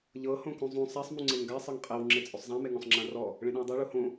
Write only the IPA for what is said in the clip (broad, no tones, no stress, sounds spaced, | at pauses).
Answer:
ʎ ɤ h õ k ũ zˤ ũ sˤ a sˤ m ũ ŋ͡ǀ e ŋ ɡ a sˤ ɤ ŋ qʼ e w ŋ͡ǁ e t͡sʼ o sˤ zˤ ã m e ŋ õ sˤ ŋ͡ǁ ã r ɔ | ɭ ẽ ɗ ẽ w dˤ a ɭ u h õ